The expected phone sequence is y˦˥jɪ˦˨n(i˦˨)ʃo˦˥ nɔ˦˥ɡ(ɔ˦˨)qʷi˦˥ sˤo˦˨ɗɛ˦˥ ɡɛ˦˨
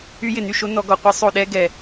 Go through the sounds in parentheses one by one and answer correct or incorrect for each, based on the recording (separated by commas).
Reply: incorrect, correct